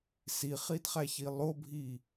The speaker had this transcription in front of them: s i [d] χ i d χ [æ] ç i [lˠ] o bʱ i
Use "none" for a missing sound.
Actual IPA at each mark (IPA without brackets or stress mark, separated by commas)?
none, æ, lˠ